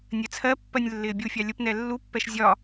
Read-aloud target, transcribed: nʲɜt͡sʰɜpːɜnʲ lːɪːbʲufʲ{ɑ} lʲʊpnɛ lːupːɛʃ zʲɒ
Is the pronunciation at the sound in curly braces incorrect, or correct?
correct